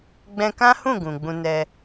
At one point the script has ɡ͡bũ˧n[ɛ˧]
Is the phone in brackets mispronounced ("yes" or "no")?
no